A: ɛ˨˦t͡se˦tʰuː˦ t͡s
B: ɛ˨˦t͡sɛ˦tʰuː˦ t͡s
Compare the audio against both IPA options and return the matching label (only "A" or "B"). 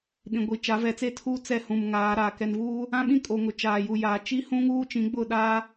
A